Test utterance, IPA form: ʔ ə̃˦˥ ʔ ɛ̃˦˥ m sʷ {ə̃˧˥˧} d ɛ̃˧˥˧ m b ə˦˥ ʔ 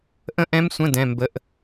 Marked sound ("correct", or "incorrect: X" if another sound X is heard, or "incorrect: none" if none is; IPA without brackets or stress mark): correct